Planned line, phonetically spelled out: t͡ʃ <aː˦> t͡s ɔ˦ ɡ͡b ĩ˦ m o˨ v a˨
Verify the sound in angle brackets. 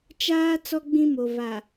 correct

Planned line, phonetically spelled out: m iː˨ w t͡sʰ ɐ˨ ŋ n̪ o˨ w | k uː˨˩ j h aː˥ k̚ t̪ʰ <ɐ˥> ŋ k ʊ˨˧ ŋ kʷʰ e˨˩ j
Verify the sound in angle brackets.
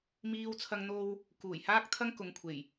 correct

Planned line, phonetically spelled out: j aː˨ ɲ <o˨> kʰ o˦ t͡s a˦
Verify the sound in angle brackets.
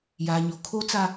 correct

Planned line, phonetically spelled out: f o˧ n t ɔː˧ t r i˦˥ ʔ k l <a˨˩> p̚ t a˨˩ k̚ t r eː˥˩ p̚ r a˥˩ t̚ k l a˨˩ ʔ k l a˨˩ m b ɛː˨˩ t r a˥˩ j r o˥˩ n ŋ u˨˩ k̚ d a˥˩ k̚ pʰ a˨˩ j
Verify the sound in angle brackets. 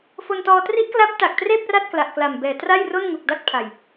incorrect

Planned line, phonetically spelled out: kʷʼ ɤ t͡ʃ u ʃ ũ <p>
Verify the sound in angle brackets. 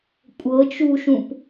correct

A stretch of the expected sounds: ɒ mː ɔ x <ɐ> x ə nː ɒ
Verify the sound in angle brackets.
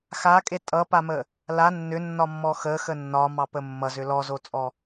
incorrect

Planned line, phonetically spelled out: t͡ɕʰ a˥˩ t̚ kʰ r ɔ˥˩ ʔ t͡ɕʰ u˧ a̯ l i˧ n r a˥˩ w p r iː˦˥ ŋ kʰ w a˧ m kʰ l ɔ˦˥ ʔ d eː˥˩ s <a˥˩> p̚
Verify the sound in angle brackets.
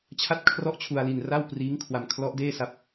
incorrect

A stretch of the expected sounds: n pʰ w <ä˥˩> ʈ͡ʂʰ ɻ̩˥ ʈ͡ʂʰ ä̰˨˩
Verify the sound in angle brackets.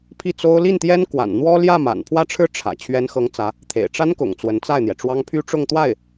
correct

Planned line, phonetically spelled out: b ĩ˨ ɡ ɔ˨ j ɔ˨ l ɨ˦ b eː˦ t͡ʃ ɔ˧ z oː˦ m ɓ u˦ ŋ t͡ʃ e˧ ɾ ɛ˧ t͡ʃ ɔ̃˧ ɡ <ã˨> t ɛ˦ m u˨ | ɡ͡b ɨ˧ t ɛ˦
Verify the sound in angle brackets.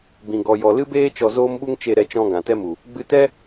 correct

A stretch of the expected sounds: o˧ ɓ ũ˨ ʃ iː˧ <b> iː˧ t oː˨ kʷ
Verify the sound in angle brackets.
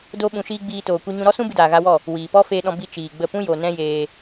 incorrect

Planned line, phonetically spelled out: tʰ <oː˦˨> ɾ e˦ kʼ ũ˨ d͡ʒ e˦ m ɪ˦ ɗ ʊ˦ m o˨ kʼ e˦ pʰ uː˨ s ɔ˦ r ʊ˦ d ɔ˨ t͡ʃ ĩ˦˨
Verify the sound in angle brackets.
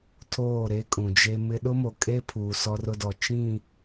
correct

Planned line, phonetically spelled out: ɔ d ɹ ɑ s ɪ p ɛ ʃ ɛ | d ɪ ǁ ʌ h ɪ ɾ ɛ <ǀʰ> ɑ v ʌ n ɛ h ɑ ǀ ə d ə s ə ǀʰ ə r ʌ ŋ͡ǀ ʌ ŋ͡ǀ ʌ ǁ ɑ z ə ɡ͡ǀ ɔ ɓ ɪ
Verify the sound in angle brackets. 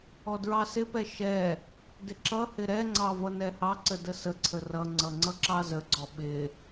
incorrect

